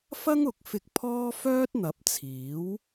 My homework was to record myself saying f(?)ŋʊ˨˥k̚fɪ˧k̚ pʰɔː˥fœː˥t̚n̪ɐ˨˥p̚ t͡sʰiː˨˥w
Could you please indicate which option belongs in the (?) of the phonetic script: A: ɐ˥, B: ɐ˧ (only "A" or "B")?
A